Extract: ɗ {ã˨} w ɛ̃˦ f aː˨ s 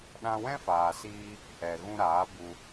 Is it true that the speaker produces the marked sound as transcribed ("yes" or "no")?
no